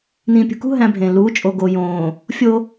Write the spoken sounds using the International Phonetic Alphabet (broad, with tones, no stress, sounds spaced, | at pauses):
n ĩː˨ pʲ ṳ˨ k ṳ˦ ɦ æ̃˦ bʱ ẽː˨ l uː˨˦ t͡ʃʼ o˨ ɡ o˨ j õː˨ | fʲ o˦